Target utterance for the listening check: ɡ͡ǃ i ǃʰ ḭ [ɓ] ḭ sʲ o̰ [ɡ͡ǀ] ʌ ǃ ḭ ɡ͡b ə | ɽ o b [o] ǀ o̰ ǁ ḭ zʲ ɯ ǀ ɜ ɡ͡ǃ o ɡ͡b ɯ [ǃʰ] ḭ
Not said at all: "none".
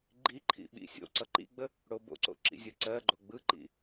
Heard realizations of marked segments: ɓ, ǀ, o̰, ǃ

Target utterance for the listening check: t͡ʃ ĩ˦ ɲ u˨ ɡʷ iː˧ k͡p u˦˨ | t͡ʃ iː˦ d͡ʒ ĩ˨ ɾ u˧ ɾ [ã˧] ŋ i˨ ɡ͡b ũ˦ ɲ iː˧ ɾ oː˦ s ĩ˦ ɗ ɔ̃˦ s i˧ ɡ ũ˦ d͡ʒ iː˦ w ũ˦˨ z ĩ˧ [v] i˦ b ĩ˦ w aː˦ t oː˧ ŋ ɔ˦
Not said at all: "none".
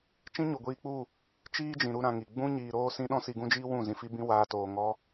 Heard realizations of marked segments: ã˧, f

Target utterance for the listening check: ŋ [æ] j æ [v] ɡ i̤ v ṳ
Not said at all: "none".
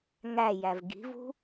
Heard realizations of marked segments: æ, v

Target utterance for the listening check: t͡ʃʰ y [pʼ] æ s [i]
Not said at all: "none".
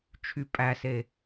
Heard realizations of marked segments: pʼ, e

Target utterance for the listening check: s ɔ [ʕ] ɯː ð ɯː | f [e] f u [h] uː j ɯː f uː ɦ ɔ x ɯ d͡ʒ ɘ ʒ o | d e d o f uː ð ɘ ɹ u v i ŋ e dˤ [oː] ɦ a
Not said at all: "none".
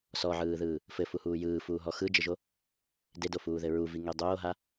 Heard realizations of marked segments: ʕ, ɘ, h, oː

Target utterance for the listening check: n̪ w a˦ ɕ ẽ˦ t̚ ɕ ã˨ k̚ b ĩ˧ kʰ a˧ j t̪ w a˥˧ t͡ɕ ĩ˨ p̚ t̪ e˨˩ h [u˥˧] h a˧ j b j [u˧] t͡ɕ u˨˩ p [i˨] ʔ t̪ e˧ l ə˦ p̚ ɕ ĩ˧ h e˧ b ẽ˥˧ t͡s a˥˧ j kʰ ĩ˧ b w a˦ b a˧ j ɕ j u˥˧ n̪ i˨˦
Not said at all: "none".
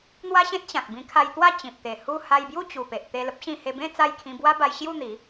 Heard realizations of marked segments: u˥˧, u˥˧, e˨

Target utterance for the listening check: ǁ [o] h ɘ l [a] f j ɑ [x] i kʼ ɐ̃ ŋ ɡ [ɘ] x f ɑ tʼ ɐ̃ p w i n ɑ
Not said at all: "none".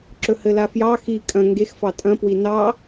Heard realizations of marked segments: ɵ, a, x, e

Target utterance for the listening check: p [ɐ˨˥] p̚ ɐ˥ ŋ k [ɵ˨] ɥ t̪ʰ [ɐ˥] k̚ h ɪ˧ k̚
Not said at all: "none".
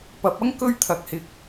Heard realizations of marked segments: ɐ˨˥, ɵ˥, ɐ˧

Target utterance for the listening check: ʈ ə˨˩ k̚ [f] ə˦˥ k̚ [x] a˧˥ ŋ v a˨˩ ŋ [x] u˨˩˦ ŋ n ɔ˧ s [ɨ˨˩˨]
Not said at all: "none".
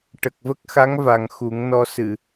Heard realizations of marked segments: v, x, x, ɨ˨˩˨

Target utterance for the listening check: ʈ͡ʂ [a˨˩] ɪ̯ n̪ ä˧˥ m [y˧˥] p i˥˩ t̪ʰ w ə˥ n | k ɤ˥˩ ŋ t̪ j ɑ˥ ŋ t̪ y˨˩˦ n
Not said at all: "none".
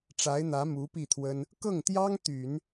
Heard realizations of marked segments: a˧˥, u˧˥

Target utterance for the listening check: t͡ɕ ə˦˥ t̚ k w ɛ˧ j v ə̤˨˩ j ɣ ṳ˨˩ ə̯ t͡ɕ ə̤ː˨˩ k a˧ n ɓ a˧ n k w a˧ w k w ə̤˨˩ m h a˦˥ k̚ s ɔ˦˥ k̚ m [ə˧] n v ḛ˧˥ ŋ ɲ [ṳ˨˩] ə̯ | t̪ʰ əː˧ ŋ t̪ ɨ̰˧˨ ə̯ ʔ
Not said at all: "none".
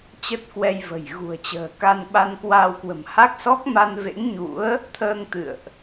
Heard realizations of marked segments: a˧, ṵ˧˥

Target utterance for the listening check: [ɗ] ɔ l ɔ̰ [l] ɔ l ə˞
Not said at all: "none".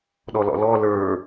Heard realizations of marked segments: ɗ, l

